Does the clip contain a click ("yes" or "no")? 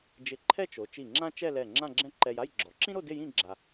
yes